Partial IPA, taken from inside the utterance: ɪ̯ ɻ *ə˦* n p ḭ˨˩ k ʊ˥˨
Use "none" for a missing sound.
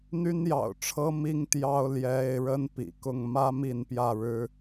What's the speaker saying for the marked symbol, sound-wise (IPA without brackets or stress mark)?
ə˦